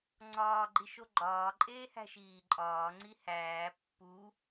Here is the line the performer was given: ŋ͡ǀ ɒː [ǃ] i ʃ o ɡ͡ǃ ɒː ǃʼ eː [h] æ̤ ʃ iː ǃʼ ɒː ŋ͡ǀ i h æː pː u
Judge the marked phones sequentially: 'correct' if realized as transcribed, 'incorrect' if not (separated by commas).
incorrect, correct